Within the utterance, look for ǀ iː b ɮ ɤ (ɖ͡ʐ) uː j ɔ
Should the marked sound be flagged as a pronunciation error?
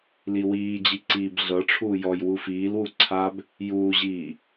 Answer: yes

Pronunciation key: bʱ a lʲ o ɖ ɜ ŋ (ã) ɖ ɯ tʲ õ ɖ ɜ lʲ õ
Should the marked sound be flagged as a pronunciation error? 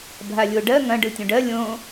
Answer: yes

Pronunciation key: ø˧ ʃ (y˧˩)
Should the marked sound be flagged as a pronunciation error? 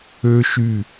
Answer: no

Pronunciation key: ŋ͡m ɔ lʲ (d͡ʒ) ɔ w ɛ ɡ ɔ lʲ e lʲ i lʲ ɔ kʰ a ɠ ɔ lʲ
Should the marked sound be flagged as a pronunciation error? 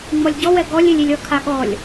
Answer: yes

